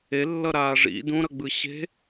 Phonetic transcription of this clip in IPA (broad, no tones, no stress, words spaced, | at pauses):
e lːʌɾaːʐḭ dũɾʌɡ͡bɯ ɕe̤